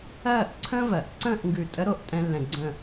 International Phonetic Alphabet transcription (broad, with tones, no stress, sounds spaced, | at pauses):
ɜː˥˧ ʔ ǀʰ ə̃ː˥ v ɜ˩˧ ʔ ǀ ə̃ː˥˧ ʔ ŋ ɡ ʉ˧˩ tʼ ə˥ ɾ o˥˧ ʔ tʼ ɛ̃˥ lː ɛ̃˧ ɡ͡ǀ ə̃˥˧